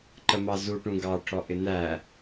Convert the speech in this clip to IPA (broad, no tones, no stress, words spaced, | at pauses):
ǃəmɑzu ʈũɡɑʈʰɔʔɪ næ